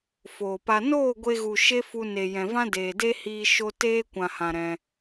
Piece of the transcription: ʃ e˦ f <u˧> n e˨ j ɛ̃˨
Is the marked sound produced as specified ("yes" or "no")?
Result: yes